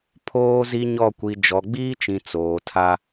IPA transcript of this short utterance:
pʰoː˦zi˦ɲɔ˦˨ kʷi˨d͡ʒɔ˨ɡ͡biː˦t͡ʃĩ˨ t͡soː˨tʰa˦

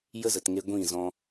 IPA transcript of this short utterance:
jə˦zə˨tŋe˧ ɡʷĩ˦˨zɔ̃˧

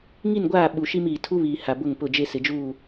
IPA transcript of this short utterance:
ŋi˦˨nɡʷaː˦˨ ɓu˨ʃi˦m iː˨ tʰu˦βiː˨ ha˨bʊ˦˨ŋpʊ˦˨d͡ʒe˦ sɪ˨d͡ʒuː˦˨

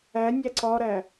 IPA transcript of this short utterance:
æ nʲæǀɒɾæ

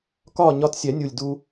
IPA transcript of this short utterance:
kɒː˥˨ɲɒ˧˥tsʲɛ˨˩˦ nʲu˨˩lʲdu˧

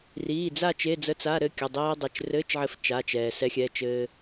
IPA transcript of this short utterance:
riː˩˧˩d͡za˥˧ t͡ʃe˧˥˧d͡zə˧˥˧t͡sa˧˥˧ ɾɘ˥˧kʲə˩˧˩ dˤiː˧dˤe˩˧˩t͡ʃrɘː˧˥˧t͡ʃʕɘ˧f t͡ʃa˩˧˩t͡ʃɛː˩ sɛ˧˥xʲɛ˩˧˩t͡ʃɘː˧

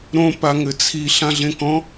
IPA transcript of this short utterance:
ɾõ paŋɘt͡sʰi ɬãɮẽkɔ̃

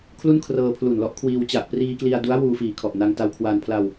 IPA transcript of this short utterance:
kʰlu˥˩n kʰrɤː˧pʰlu˨˩nlɔ˦˥ʔkʰwiː˧w t͡ɕa˨˩ʔpriː˧kli˧a̯du˦˥a̯ wuː˧fiː˨˩kʰɔ˨˩ʔna˧ŋ ta˧wkʰwaː˧n pʰla˧w

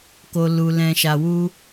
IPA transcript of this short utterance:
ko˨lu˨ lɛ̃˨ʃa˨wu˧

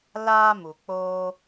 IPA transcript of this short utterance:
laː˦mu˨k͡poː˦

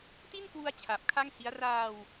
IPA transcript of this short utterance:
ti˥˩nkwu˧a̯ t͡ɕʰa˨˩p̚kʰa˥˩ŋhi˦˥a̯ raː˧w

